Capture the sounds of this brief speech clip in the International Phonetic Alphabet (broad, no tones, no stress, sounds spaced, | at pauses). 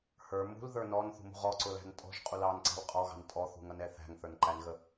h ə˞ m ṳ l ð ə˞ n ɔ n θ ṳ m ṳ ʁ ɔ ǀ ʊ l æ̤ n tʼ ɔ̤ ʒ qʼ u l ɑ n ǀ ɑ̤ l qʼ ɔ ɣ ɑ̤ n tʼ ɔ θ ṳ ŋ ʌ n ɛ θ æ̤ ŋ θ ə˞ n ǃ æ n ɣ ə